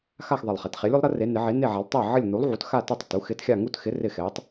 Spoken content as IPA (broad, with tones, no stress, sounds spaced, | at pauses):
x a˥˨ x ðˤ ɪ˨˩ lˠ χ ɛ˨˩ t χ e˨˥ lʲ u˨˥ lˠ ɾ ə˨˥ r e˨˥ n ɪ˨˥ ʕ e˨˥ n e˥˨ ʕ a˨˥ lˠ tˤ e˥˨ ʕ ə˥˨ lʲ n u˨˥ lˠ ʕ u˨˥ t x a˥˨ t ɪ˥˨ tˤ ə˨˩ t u˨˥ x ɪ˨˥ t xʲ a˥˨ ŋ u˥˨ t x ɪ˨˥ r ɪ˥˨ x ɛ˨˥ tˤ